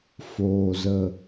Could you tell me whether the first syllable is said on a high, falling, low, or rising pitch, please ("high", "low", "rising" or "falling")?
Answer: low